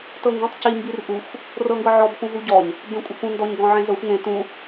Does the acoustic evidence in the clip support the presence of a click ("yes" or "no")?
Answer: no